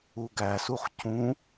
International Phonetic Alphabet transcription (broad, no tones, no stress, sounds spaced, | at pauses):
u ɡ æ s u χ c ũ